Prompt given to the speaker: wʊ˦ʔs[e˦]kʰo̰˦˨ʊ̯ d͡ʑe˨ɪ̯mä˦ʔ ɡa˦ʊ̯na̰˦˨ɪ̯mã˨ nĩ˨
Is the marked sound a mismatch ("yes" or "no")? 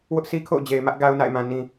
yes